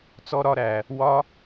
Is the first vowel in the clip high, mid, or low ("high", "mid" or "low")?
mid